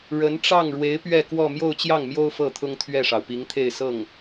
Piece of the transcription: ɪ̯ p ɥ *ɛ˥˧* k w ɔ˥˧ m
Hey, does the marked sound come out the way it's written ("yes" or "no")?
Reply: yes